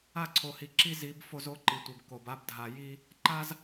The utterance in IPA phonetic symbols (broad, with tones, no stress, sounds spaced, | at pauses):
a˦˨ ǀʰ o˨ h i˨ ǁ i˦ z i˨˦ b f o˦ z o˦ ǃ i˨ tʷ i˨ b k o˨ b a˦ b dʱ a˨ j i˦ | ǃ a˦ z